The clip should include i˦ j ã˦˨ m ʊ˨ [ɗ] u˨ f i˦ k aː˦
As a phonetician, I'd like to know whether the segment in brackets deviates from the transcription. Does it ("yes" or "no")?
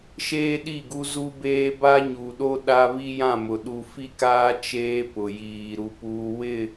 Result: no